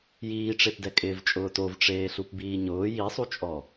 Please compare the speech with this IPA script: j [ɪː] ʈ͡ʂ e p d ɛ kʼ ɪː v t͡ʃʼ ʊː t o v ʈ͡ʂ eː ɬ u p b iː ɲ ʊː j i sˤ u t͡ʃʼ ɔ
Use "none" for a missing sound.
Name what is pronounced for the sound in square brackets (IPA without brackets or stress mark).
iː